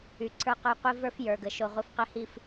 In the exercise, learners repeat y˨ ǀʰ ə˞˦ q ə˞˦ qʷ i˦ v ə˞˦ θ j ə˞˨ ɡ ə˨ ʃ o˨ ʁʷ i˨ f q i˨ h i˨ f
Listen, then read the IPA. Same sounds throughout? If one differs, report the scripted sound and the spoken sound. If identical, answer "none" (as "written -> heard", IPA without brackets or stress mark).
θ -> f